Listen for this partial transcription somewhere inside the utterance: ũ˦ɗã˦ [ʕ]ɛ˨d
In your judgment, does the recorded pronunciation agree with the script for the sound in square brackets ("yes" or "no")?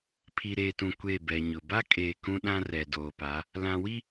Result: no